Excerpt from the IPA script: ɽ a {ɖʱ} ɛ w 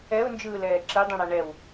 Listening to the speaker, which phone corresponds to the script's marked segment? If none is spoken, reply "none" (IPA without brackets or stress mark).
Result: ɳ